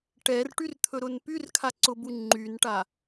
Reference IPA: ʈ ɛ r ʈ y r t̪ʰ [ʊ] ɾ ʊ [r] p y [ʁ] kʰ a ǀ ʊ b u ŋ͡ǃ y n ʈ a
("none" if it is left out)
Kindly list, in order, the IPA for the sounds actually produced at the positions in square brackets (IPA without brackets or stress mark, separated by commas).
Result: ɵ, n, r